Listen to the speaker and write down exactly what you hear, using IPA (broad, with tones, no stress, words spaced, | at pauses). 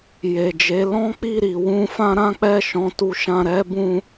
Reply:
je˨d͡ʒe˨˦ lɔ̃˦k͡pi˦˨ ɾi˨ wũ˧fã˦ ɾã˦k͡pɛ˦˨ ʃɔ̃˨˦tu˧ʃã˧ ɾɛ˦ bũ˦